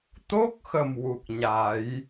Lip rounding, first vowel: rounded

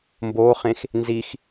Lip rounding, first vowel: rounded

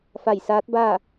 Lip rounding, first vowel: unrounded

